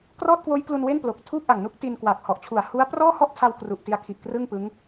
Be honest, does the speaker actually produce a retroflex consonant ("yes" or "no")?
no